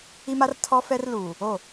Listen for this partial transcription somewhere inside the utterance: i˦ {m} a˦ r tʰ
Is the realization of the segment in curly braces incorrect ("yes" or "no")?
no